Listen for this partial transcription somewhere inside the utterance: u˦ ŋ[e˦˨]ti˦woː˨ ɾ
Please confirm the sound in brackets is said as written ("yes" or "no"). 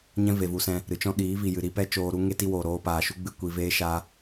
no